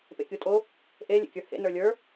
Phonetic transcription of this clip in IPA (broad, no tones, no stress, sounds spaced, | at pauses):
p ḛ kʲ u tʼ o | ʔ e lʲ ḛ kʲ ə˞ h ḛ n ə˞ lʲ ə˞